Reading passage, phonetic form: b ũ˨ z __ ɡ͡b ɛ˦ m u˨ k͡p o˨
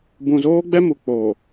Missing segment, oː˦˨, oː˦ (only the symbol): oː˦